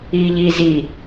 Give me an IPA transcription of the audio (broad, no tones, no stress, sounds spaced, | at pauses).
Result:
i ʎ i z i